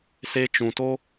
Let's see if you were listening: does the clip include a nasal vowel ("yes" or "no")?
yes